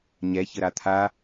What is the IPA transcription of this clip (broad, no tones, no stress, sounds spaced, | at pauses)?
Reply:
ɲ ɛ ç ə ɾ a t̪ʰ a